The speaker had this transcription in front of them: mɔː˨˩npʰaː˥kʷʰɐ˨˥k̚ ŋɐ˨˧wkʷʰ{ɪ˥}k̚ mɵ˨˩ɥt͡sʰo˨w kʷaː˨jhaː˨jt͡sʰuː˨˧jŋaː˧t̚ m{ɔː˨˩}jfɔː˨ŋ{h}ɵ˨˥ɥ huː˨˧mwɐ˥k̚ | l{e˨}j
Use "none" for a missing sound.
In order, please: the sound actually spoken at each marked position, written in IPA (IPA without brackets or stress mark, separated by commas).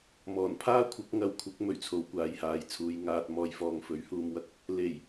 ɪ˨˥, ɔː˨, f, e˨˩